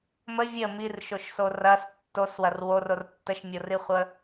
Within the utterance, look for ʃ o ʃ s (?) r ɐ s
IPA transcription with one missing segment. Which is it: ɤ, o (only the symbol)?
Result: o